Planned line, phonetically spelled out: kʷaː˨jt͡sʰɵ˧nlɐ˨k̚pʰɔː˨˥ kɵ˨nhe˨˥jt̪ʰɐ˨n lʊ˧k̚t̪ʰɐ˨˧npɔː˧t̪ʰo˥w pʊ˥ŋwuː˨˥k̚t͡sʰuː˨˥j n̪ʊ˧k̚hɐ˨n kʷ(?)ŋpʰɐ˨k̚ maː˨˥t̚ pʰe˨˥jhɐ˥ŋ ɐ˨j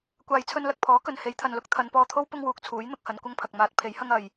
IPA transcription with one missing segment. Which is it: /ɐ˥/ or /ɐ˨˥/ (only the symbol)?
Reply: ɐ˥